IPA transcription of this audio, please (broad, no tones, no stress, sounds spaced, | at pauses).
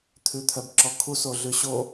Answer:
t̪ʰ ʉ t̪ʰ œ b ǁ ɔ kʰ u s o ɮ ʉ ɕ o